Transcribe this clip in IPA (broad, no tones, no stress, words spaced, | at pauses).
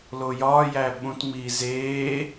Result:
lojɒːjæː ɓũtŋ͡miː zeː